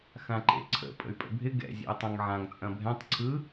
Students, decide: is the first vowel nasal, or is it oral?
nasal